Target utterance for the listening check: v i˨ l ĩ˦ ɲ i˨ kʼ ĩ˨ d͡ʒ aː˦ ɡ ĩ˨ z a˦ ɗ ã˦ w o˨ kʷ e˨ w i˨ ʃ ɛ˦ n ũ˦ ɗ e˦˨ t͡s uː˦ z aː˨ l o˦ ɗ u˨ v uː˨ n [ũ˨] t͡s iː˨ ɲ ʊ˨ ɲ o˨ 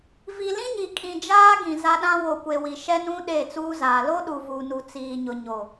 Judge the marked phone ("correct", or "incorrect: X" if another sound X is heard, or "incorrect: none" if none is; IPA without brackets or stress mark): incorrect: u˨